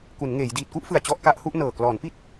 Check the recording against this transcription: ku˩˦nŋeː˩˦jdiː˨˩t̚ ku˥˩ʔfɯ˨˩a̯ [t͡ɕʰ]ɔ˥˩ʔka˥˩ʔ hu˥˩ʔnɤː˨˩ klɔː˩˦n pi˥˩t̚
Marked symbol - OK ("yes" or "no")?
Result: no